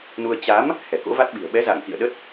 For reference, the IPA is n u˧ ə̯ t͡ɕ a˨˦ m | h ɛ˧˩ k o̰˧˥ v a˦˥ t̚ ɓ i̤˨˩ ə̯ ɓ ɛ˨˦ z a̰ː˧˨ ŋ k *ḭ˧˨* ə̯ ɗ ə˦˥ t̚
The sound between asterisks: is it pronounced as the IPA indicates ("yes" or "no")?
yes